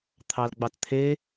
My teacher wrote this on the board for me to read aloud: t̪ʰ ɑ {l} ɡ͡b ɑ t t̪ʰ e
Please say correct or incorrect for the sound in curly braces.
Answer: correct